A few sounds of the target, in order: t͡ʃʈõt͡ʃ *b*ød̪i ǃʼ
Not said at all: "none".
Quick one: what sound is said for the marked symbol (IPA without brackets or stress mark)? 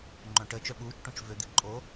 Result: v